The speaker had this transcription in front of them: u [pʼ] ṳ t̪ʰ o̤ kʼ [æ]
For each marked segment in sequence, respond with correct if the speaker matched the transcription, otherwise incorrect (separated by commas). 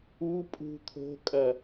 correct, incorrect